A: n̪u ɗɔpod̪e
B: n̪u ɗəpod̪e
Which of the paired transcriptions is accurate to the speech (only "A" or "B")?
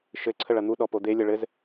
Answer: A